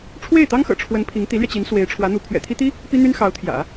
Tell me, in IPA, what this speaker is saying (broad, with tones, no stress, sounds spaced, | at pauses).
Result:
ʈ͡ʂʰ w e˥˩ ɪ̯ t̪ ɑ˥ ŋ x ɤ̰˨˩ ʈ͡ʂʰ w ə˧˥ n pʰ i˧˥ ŋ t̪ i˧˥ l ɥ ɛ˧ t͡ɕ i˧˥ n s w e˧˥ ɪ̯ ʈ͡ʂʰ w ä˧˥ n̪ u˧˥ pʰ ɥ ɛ̰˨˩ t̪ʰ i˥ t̪ i˥ | p i˥ n̪ y˥ n x ɑ˧˥ ʊ̯ t̪ʰ j ä̰˨˩˦